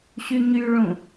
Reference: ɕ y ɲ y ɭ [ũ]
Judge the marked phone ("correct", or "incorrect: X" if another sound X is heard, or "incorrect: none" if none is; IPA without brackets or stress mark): correct